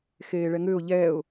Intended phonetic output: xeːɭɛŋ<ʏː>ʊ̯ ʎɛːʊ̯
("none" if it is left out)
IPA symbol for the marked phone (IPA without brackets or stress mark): ʏː